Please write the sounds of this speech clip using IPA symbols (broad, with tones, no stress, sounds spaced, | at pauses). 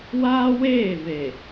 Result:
w aː˦ w eː˦˨ v e˨